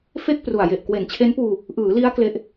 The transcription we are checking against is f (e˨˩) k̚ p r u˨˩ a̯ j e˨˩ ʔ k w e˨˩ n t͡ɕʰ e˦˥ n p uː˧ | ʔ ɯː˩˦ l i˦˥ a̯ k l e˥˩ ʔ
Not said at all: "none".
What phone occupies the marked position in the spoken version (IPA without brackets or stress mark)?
e˥˩